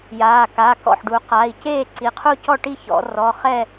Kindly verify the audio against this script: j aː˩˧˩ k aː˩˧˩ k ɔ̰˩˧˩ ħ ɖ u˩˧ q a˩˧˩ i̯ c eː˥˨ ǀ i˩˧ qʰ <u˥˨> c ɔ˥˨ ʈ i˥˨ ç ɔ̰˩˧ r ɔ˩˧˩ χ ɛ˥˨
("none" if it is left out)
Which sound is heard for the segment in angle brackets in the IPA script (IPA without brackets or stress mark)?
u˥˨